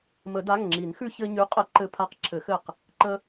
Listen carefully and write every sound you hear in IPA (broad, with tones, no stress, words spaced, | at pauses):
mə˨˩˦da˩˧˩ŋŋ͡ǁi˨˩˦n xʉ˧çɘ˧ɲʉ˨˥ qʼə˨˩˦ǃɘ˧pʰa˧q ǁʰɘ˨˩˦xɘ˧˩q | ǃə˧